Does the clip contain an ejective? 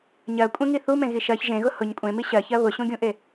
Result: yes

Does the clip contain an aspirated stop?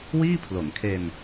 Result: yes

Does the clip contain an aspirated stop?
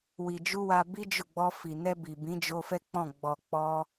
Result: no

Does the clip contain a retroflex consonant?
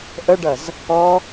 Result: yes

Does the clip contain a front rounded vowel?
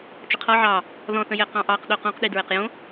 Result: no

